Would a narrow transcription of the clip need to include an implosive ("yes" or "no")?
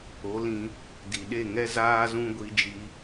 yes